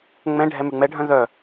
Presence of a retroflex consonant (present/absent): present